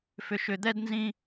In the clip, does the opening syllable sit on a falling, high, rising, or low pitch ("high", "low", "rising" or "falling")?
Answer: low